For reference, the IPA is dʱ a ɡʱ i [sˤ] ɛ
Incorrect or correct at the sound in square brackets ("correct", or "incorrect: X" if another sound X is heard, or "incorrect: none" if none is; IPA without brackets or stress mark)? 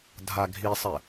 correct